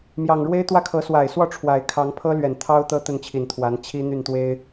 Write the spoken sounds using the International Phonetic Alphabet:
mjɑ˨˩ŋɻwe˥ɪ̯ t̪wä˥kʰɤ˧˥ swa˨˩ɪ̯swɔ˥˩ ʈ͡ʂʰwa˨˩ɪ̯kʰɑ˧˥ŋ pʰɤ˥lɥɛ˨˩n t̪ʰɑ˥ʊ̯ t̪ɤ˥t̪ə˥˩nt͡ɕʰi˨˩nt̪ʰwa˧˥n t͡ɕʰi˥n̪y˥˩nt̪we˥ɪ̯

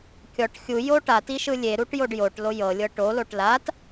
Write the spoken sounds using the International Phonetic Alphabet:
kʲɔʈ xʲujo ʈatiʃɯ lʲeɾuʈjoɖ joʈlo jɤlʲɤ ʈoloʈ lat

